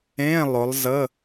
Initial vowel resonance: nasal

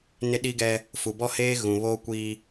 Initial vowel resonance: oral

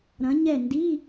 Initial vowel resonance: nasal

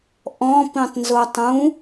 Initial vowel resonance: nasal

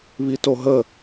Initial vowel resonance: oral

